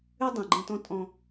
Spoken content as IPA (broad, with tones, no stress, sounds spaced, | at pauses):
ʉ˦ dˤ ĩ˨ ɡ͡ǃ ə̃ː˦ t ɔ̃˦ tʼ ɔ̃˦